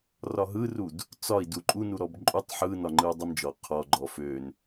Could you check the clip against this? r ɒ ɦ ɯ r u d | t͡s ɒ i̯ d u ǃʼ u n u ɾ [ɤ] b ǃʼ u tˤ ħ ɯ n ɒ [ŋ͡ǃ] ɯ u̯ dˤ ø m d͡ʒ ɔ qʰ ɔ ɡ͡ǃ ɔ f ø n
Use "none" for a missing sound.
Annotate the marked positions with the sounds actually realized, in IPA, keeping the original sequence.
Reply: ɔ, ŋ͡ǃ

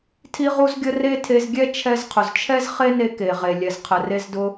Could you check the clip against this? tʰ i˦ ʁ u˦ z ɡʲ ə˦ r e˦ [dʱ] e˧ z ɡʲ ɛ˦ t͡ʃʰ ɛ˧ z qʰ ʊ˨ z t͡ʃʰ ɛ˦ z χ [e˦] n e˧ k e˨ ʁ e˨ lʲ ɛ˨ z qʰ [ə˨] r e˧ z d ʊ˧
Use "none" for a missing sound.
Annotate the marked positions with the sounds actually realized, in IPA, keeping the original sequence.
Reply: tʰ, e˦, ə˨

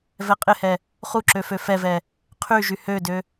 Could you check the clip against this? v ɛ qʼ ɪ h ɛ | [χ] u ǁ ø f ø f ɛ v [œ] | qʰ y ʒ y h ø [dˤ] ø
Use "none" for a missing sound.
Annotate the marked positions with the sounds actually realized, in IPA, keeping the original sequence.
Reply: χ, ɛ, d

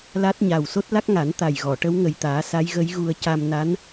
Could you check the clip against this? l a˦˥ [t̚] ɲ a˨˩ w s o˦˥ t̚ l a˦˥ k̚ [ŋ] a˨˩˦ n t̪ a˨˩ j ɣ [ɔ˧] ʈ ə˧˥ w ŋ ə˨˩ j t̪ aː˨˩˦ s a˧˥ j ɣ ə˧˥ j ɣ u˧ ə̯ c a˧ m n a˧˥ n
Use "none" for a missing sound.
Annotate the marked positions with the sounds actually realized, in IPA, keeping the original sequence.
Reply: t̚, ŋ, ɔ˨˩˨

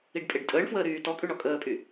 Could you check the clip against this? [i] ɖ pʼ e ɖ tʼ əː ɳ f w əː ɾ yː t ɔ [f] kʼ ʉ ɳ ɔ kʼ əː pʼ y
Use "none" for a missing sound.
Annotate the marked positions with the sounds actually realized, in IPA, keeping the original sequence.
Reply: i, none

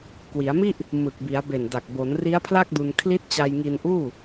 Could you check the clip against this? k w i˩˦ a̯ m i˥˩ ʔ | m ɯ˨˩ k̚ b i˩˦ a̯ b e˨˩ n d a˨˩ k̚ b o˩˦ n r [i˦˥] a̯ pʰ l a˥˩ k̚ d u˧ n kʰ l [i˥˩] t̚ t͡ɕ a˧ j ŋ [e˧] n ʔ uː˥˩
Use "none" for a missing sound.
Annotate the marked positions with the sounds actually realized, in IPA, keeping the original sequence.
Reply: i˦˥, i˦˥, i˧

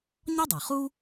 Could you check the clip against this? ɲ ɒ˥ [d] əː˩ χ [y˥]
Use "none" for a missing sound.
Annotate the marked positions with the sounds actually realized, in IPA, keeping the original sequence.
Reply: dˤ, u˥

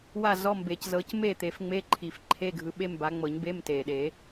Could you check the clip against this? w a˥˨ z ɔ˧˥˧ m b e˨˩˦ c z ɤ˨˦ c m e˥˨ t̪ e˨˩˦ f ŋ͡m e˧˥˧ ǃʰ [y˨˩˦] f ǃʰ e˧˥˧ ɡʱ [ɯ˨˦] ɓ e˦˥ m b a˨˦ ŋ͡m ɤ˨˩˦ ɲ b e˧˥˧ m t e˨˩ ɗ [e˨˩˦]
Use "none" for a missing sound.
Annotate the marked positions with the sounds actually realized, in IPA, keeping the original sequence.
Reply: i˨˩˦, ɯ˨˦, e˨˩˦

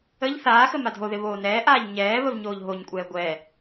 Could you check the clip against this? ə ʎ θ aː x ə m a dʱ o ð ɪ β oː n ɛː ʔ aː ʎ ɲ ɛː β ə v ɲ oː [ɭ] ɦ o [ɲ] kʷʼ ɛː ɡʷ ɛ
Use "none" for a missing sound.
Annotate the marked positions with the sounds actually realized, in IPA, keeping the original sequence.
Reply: ʎ, ɲ

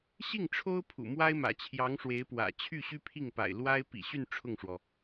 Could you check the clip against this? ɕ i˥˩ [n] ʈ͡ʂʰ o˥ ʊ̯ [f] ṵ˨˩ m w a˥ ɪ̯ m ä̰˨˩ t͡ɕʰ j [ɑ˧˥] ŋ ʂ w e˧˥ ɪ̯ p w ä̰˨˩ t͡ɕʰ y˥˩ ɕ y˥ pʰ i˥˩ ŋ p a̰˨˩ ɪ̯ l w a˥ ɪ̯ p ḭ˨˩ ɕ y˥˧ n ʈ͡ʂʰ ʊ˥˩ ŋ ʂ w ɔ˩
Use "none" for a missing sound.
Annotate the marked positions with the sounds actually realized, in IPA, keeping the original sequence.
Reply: ŋ, pʰ, ɑ˧˥

